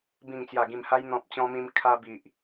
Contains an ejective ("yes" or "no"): no